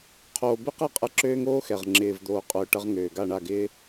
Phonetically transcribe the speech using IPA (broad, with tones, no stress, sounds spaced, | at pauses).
qʰ oː˨ b ɪ˦ q ɛ˦˨ qʼ ɛ˧ ǁ øː˦ ŋ oː˦ x ɛ˨ ʁ ŋ͡ǁ ɪː˨ v d̪ oː˨ qʼ ʊː˨ ʈ ɐ˧ ʁ ŋ øː˨ ɡ a˦˨ ɳ a˦˨ ɡ ɪː˦